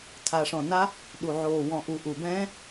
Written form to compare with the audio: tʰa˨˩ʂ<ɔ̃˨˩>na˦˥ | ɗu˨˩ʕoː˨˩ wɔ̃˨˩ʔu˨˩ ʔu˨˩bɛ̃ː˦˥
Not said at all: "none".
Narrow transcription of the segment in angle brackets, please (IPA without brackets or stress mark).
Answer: ɔ̃˨˩